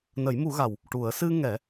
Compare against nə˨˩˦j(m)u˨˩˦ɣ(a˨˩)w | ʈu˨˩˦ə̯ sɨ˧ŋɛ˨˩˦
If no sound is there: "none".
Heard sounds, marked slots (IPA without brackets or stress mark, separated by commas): m, a˨˩